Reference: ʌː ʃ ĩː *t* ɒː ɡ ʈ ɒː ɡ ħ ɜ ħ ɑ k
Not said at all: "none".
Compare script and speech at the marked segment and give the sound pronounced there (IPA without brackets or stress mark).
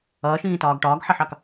t